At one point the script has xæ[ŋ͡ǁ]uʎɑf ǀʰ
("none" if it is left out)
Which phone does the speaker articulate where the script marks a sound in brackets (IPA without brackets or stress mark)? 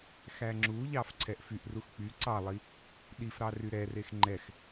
ŋ͡ǁ